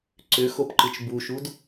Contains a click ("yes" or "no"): yes